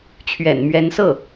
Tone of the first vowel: low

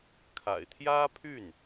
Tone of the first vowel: low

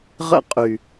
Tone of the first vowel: high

